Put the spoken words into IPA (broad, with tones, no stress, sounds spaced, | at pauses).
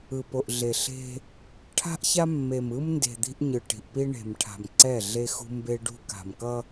ɯ˨ p o˨ ʔ ɮ e˨ ɬ e̤˦ | ʈʰ a̤˦ ʔ ç a˦ mː e˨ m ɯ˦ m n d e̤˨ d̪ i̤˦ ʔ ɲ ɯ˨ ʈ i̤˨ ʔ p i˦ ɳ e̤˨ m ʈʰ a̤˨ m ǀ ɛ˦˨ ɮ e˦ x ṳ˦ m b e˦ ɖ ṳ˦ k a̤˨ m k ʌ˦